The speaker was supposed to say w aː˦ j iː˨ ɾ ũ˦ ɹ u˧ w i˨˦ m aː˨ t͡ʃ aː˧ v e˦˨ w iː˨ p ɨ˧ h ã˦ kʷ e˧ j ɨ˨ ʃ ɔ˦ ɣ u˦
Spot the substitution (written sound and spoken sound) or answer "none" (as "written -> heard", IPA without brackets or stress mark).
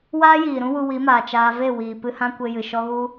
ɹ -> w